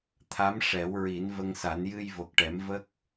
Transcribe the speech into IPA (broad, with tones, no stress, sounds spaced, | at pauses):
t̪ʰ a˧˥ m ʂ ɛ˨˩˦ w ɹ i˨˩˦ n v ə˧ ŋ s a˨˩˦ n j ɨ˧ j v o˨˩ k̚ ʈ ɛ˨˩˦ m v ə˦˥ k̚